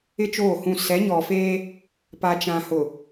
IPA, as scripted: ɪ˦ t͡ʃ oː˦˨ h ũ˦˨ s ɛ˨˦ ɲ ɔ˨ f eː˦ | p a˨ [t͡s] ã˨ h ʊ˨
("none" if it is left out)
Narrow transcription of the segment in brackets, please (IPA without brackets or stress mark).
t͡ʃ